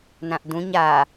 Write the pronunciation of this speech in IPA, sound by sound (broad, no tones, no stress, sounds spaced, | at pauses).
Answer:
n ã ʔ d ũ ɲ a